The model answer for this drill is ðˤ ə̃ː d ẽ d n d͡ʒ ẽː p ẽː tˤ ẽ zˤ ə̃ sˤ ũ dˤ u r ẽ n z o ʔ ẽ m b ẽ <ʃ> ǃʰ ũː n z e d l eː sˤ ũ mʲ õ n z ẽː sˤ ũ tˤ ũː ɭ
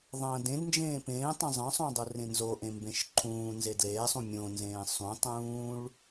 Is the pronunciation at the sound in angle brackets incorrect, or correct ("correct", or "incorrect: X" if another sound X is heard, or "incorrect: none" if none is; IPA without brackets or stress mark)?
correct